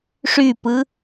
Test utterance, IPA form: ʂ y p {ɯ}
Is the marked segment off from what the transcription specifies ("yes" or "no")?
no